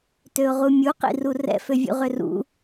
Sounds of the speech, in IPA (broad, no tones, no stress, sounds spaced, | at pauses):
t ø ʊ̯ ʁ u mʲ u q ḭ r u r ɛ̰ f ø vʲ ṵ ʁ ʏ r ṵ